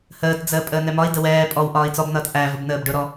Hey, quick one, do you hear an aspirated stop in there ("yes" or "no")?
no